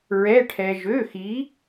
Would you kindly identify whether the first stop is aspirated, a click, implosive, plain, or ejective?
aspirated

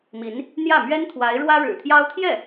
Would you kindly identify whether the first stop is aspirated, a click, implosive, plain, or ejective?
aspirated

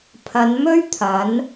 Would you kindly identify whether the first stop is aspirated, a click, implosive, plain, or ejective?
aspirated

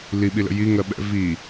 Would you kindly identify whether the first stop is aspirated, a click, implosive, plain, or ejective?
implosive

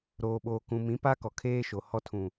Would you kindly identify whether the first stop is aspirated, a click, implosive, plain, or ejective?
implosive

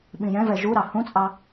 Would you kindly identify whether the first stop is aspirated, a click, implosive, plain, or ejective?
implosive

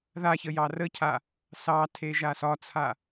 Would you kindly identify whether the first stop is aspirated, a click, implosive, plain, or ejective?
aspirated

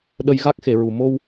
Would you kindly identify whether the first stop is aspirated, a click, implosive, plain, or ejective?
implosive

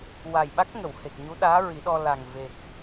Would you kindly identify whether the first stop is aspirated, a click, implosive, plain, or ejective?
implosive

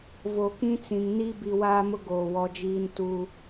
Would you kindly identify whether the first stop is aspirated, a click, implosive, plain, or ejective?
plain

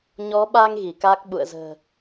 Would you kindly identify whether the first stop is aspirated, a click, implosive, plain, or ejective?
implosive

